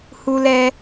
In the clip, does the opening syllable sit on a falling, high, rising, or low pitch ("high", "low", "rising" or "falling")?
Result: high